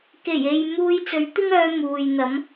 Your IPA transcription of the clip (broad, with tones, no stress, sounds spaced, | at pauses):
k e˨˩ j e˨ j m uː˧ j t͡s ɵ˨˥ ɥ t̪ ɪ˥ ŋ œː˧ m uː˨ j n̪ ɐ˨˥ m